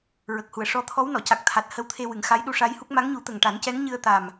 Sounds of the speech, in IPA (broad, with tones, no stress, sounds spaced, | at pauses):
ɹ ə˨˩ k̚ h u˨˩ ə̯ ʂ ɔ˧ t̪ʰ ɔ˧˥ w n ɔ˨˩˨ c a˨˩ k̚ t̪ʰ a˨˩ t̚ h ə˧ w t̪ʰ e˧ w ɨ˨˩˨ ŋ x a˧˥ j ɗ u˧ ʂ a˧˥ j h u˦˥ k̚ m a˧˥ ŋ ɲ u˨˩˦ t̪ ə˨˩ ŋ ʈ a˨˩˦ n c ɛ˧˥ ŋ ɲ ɨ˧ ə̯ t̪ a˨˩ m